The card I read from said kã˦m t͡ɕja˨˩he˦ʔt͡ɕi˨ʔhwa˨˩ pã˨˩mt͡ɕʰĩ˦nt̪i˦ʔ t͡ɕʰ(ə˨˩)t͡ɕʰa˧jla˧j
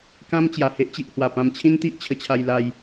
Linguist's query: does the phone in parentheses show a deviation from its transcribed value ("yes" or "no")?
yes